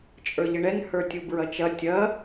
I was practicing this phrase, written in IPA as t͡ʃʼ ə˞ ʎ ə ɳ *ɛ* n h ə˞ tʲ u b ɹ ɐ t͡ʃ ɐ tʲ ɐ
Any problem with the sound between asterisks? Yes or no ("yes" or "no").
no